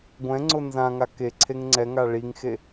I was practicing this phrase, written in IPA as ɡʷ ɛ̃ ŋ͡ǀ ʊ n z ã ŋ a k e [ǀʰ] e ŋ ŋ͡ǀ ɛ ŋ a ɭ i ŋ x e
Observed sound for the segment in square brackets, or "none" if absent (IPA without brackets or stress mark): ǀʰ